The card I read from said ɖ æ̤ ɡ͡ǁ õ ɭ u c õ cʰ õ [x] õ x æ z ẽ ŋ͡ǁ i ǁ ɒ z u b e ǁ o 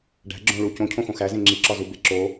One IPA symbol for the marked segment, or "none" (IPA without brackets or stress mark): x